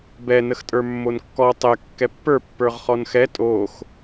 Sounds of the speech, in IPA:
bɛ nəxtʼə˞mːonkːɔ tˤɛ kːɛpːə˞ pːə˞ʁχɔnxɛ tʼox

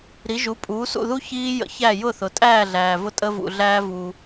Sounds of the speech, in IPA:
ɾi˩˥ʒu˩˥ pʼuː˩˥sṵ˥˩ðu˥ çiː˧jə̰˩˥ çæ˥˩ jʊ˥˩θʊ˩ tʼæː˥˩ɮæː˩ vʊ˧tʼə˧vṵ˩ ɮæː˧vu˩

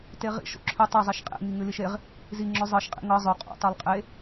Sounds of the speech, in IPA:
teʁḭʃ o̰ǁʰʏ tˤezˤiʃ qʼḛŋi ŋʉliʃeʁ | zi ŋ͡ǁʏ zˤɤʃqʼḭ ŋɤ zˤʏ qʼo̰ tˤʉlˠqʼe

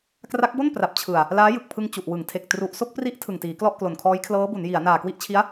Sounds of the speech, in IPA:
kra˦˥k̚bo˥˩n pra˨˩p̚t͡ɕʰɯ˨˩a̯ | laː˦˥jɯ˨˩k̚pʰɯ˧ŋ t͡ɕu˨˩ʔwɯ˩˦ŋtʰe˨˩k̚ tru˨˩ʔso˥˩k̚pri˦˥ʔ tʰɯ˨˩ŋtiː˩˦klɔ˥˩ʔ klo˨˩nkʰɔː˦˥jkʰlɤː˦˥bu˩˦n ji˩˦a̯ naː˨˩kwi˦˥ʔt͡ɕʰi˦˥a̯

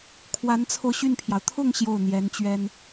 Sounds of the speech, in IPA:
kʰwa˧˥nt͡sʰo˧ʊ̯ɕy˥˩npʰjɑ˩ʊ̯ t̪ʰʊ˥˧ŋ ɕjo˥˩ʊ̯n̪jɛ˧˥nt͡ɕɥɛ˥n

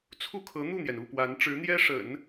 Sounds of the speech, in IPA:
t͡sʰu˥˩kʰɤ˧˥n̪u˥˩n̪jɛ˩n u˥˩pwa˧˥n ʈ͡ʂɻ̩˧˥n̪jɛ˥ʂə̰˨˩˦n

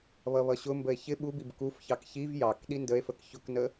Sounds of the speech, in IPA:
βʌβʌɕʊmbəe̯ çɪ ɓubib kufçɑk çiv jɑk ɗindəe̯fək çʊknə

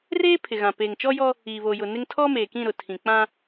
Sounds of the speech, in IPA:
reː˦ pʰɪ˨ɣã˨ peː˨ŋt͡ʃɔ˦jɔ˦ | iː˨βoː˨ jʊ˨nɪ˦ŋ tʰɔ˦meː˨kĩ˦˨ ɾʊ˨tʰĩ˨ k͡pã˦

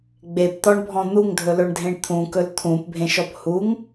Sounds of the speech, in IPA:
ɡ͡bept̪ɔɳbʱɔ̃ n̪uŋdʱɵlɵɳdʱẽɳ t̪ʰũkɵl t̪ʰũpbʱẽʃɔp huŋ

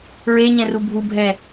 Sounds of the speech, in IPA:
ɹeɲɛ̃ru bʱubʱɛ

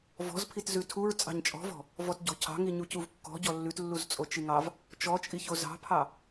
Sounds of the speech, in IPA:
vɔ̤zpʰit zʉtʰuɹ t͡sʼɑ̤ɲt͡ʃʼɔ̤vɔ̤ | vɔtɟɔ̤cʰɑ̤ŋi ɲucuvkːɔ̤ ɟɔlːʉtlːuz t͡sʼot͡ʃiŋɑv | t͡ʃɔt͡ʃʼiço zɑ̤pʰɑ

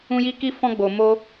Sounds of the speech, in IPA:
ũ˦ji˦ ki˦fɔ̃˦ ɡ͡bo˧ mo˦

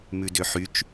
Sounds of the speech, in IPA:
mʉdøħyt͡ʃ

